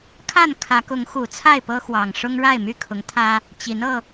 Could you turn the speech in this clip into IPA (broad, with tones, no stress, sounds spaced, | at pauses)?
kʰ a˥˨ n kʰ ä˨˦ k ʊ˨˦ ŋ x u˨˩ t͡sʰ a˥˨ ɪ̯ p ɤ˦ x w ɑ˨˩ ŋ ʂ ʊ˦ ŋ ɻ a˥˨ ɪ̯ m y˥˨ kʰ ʊ˨˦ ŋ t̪ʰ ä˦ | t͡ɕ i˨˦ n ɤ˧